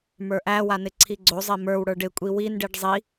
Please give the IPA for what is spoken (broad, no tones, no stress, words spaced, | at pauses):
mə˞ʔæwanɪ ǀʰiɡ͡ǀozˤe mə˞w ɽə˞ɖɪ kʷʼiwinɖiɖ zˤi